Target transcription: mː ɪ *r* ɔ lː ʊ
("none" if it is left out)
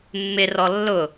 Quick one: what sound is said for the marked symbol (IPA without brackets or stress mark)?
r